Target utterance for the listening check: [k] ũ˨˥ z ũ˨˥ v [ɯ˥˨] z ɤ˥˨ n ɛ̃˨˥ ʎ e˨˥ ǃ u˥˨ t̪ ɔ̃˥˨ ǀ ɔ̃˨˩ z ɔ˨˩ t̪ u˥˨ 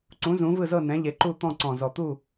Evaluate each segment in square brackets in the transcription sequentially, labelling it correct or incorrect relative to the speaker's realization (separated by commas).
incorrect, correct